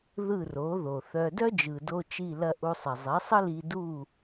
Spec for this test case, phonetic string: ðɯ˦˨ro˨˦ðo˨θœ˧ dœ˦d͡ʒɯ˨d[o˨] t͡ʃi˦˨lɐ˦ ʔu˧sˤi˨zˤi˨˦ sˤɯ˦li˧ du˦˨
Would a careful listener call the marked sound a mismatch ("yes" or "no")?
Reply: yes